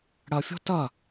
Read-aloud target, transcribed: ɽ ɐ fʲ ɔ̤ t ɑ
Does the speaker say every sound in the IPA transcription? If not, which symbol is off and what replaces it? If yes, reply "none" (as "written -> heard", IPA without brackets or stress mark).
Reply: ɑ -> ɐ